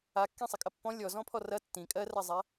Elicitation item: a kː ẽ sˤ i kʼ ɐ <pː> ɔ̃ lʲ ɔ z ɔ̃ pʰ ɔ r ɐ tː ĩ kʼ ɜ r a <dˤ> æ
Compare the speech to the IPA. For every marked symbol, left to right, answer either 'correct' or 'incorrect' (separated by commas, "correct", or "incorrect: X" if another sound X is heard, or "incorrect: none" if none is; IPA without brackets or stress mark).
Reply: correct, incorrect: zˤ